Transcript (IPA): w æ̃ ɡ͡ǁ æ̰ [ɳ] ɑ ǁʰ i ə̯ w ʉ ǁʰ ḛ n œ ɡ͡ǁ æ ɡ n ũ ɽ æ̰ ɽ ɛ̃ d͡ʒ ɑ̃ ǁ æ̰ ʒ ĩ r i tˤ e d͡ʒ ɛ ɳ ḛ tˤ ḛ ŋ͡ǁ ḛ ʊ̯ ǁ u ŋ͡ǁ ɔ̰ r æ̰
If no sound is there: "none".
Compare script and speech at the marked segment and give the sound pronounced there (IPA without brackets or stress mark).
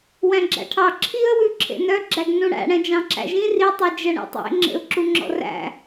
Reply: ʈʰ